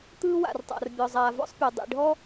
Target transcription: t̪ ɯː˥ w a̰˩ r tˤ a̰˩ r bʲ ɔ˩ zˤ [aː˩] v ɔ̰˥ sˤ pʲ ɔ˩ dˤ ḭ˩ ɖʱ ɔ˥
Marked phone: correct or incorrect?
correct